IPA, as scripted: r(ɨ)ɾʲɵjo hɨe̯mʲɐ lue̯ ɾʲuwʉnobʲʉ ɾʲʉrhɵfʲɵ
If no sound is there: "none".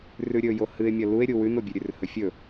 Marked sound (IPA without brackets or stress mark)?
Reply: ʉ